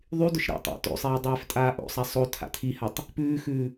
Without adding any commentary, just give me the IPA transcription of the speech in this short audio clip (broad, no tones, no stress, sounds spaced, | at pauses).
ðˤ y d ʊ ʃ ɾ æ̰ tˤ æ̰ t o̰ sˤ eː dˤ eː f tʼ aː ʔ o̰ sˤ æ sˤ o tʰ a̰ tʰ i h a tˤ | p ʉː x ʉː